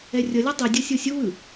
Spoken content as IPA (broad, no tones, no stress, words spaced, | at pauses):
ɛrʲʌlʲo dˤidʲʌ sʲosʲuwɯ